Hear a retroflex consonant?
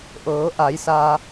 no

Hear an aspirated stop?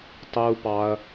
no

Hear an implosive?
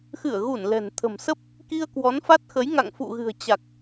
no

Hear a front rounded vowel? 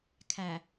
no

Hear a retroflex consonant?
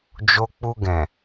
no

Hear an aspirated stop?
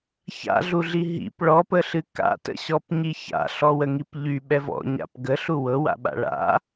no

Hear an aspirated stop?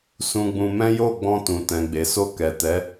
no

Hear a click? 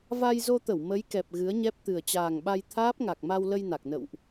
no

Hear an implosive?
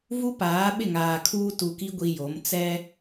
yes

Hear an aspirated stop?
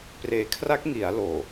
yes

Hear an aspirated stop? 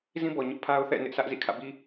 yes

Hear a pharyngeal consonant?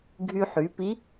yes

